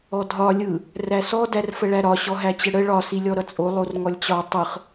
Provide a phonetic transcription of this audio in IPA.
ɔ dʱ ɒ lʲ ɯ | r æ s ɔ d æ r f ə ɭ æ ɾ ɒ ɕ ɔ ɦ æ t͡ɕ ə ɽ ə ɭ ɒ s i lʲ ɔ ɾ ʌ t͡sʼ o lˠ o r ŋ ɔ lʲ t͡ɕ ɒ tˤ ɯ χ

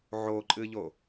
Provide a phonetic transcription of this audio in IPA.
ʕ o ǃʼ ɨ ʎ o

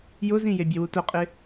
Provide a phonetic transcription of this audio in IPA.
j ʊ z ĩ j e bʲ e w u t ʊ qʼ ɪ

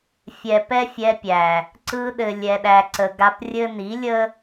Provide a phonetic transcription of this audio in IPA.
fʲ ɛ˨ p ɛ˦ fʲ ɛ˧ pʲ æ˨ | ǀ ɯ˧ ɗ ɘ˨ lʲ ɛ˧ ɗ æ˧ ǀ ə˨ ɡ a˧ p rʲ ɘ˦ n i˨˦ lʲ ə˦

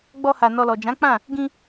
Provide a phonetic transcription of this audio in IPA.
ɡ͡b ɔ˧ h a˨ n ɔ˧ l ɔ˨ d͡ʒ ã˨˦ k͡p ã˦˨ | ɡ ĩ˧

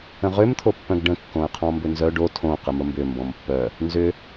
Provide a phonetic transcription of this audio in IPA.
ə̃ ʁ ʏ m t̪ʰ o pː œ̃ ɡ ɖ ə̃ kː õ ə̯ qʰ ɔ̃ m b ʏ n z œ ɖ o tʰ õ q ə m ə m b ʏ m b ɔ̃ m pː œ | n z ʏ

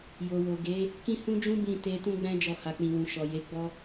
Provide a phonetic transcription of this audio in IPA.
j o˨ w o˨ ɡ e˨˦ | k ĩ˦ h ũ˦ d͡ʒ ũ˦ b ĩ˦˨ t e˧ t ũ˦ ɡ͡b ɛ̃˦ d͡ʒ ɔ˧ h a˨ k͡p ĩ˨ w ũ˨ ʃ ɔ˨ j e˨˦ ɡ͡b ɔ˦

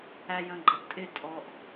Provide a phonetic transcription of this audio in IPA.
æ j ə̃ː ɡ͡ǃ ə ʔ tʼ ɪ tʼ ɔ ʔ

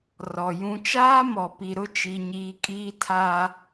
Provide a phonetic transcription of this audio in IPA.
r ɔ˨ j ũ˦ t͡ʃ aː˦ m ɔ˨ p i˨ ɾ ʊ˦ t͡ʃ i˦ ɲ iː˦ kʼ iː˦ tʰ aː˦

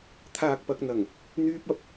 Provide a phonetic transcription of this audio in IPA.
t̪ʰ aː˨ k̚ p ɐ˨ k̚ n̪ ɐ˨˩ ŋ | n̪ yː˧ p̚ ɐ˨ p̚

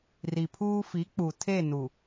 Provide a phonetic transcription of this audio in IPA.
r i˨ pʰ uː˦ f i˨˦ k͡p u˨ tʰ e˦˨ n u˨

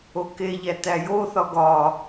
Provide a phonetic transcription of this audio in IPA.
o k e ʎ æ t æ j o θ ɒ ɡ ɒ

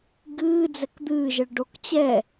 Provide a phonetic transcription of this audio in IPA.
ɡ ɨː d͡z ɛ k d̪ ɨː ʒ ɛ ɭ ɖ o k t͡ɕ ɛ

